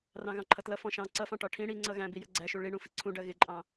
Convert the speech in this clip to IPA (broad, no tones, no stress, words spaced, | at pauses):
rɑ̃ɣɑ̃ǃʰʌtlʌ fɔ̃ʃɑ̃ ǀʌfɑ̃ʈɒ ʈʰĩ ɽi ŋ͡ǀʌɣæ̃ bijəɡ͡ǀæʃu ɭiɳũ fiǀʰũɖɜ ɣɪǃʼɑ̃